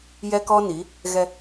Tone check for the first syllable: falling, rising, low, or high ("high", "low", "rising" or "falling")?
high